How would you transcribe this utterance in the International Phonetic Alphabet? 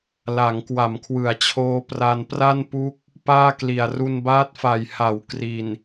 la˩˦ŋ kwa˩˦mkʰwɯ˩˦a̯t͡ɕʰoː˦˥ pra˧npra˥˩npu˦˥k̚ | paː˥˩kli˨˩a̯ ru˧nbaː˦˥t̚fa˨˩j ha˩˦w kri˨˩n

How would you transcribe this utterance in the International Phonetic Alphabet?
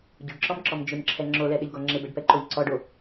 ɟʏɖǁɔmǁɔm d͡ʒʏmǁʰɛ ŋ͡ǁolɛɗɪʎɡɔ ŋ͡ǁɪbɛɖpɛǃoʎ ǀɔɖo

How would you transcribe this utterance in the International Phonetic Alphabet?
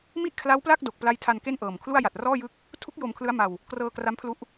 mi˥˩ʔkʰla˦˥wpla˥˩k̚ do˨˩k̚pla˦˥jtʰa˧n ke˥˩nʔɤː˨˩mkʰlu˥˩a̯ ja˨˩t̚rɔː˥˩jɯ˦˥k̚ | tʰu˦˥k̚ jo˧mkʰlɯ˦˥a̯ma˧w | krɤː˧ kra˦˥mpʰlu˦˥ʔ

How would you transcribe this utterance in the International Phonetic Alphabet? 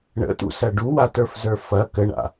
ɳə̰t̪ṵsɐ ɖuwatə˞fzə˞ fɐ kəɳa̰

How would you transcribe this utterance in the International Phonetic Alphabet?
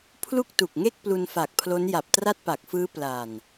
pʰlu˥˩k̚tu˨˩k̚ŋe˥˩k̚ plu˧nfa˨˩k̚pʰlo˦˥n ja˨˩p̚tra˥˩t̚pa˨˩k̚fɯː˦˥ pla˨˩n

